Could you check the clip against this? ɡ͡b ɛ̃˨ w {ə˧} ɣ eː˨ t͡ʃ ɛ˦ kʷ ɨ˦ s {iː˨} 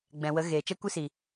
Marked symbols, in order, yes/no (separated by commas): no, no